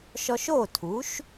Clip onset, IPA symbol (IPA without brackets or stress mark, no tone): ʃ